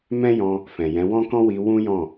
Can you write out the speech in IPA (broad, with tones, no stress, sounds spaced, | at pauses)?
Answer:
m ɛ̃˦ j ɔ̃˧ | f ɛ̃˨ j ɛ̃˨˦ w ɔ̃˦ k ɔ̃˦ w i˧ w ũ˦ j ɔ̃˦˨